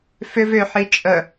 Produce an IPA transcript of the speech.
f ʏ v ʏ ħ i t͡ʃʼ ə

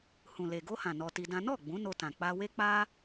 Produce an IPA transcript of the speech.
h ũ˨ l e˨ ɡ o˧ h ã˨ n ɔ˧ t i˧ d ã˦ n ɔ˦˨ ɡ͡b ũ˨˦ n o˧ t ã˨ k͡p a˧ w e˦ k͡p a˦

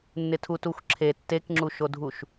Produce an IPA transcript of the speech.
nː ɪ tʰ u t u xʷ ǁʰ e tː e k ŋ͡ǁ u ʃ o dʱ u ʃ

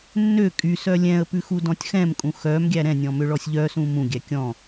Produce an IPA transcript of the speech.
nː ø kʼ y s œ lʲ ɛ̃ ə̯ p ʉ x u d ɔ̃ tʲ x ɛ̃ m kʼ ũ x œ m ɡʲ æ ɾ ɛ̃ nʲ ɔ̃ m ø ɭ ɔ sʲ ʎ œ s ũ m ũ ɡʲ æ kʲ ɔ̃

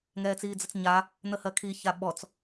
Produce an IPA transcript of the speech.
ŋ ɛː t͡s iː d͡z ə t͡s ɲ a | n̪ ə h ɜ kʰ i ç a ɓ ɔ t͡s

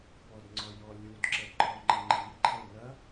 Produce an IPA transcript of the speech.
p ɔ d ŋ͡ǀ ɔ j ɔ lʲ u d ǁ ɛ d ǃʰ ɔ ŋ͡ǃ ɐ ŋ͡ǃ i ǃʰ ɛ n ɐ

